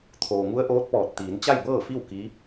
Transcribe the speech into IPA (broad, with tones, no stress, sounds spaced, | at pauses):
t̪ʰ oː˩ ŋ u˧˥ ə̯ ʔ oː˧˥ t̚ p ɔː˧˩ t̚ t̪ iː˩˧ n t͡ɕ a˥˨ j b ɤː˥˨ f i˥˨ w k i˧˥